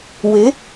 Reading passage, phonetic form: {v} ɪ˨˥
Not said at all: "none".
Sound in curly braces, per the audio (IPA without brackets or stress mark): w